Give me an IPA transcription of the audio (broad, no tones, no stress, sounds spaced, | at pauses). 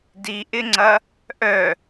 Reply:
d i ʔ ɪ ŋ͡ǀ ɐ | ʔ œ